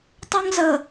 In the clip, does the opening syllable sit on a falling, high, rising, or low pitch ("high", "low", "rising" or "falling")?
high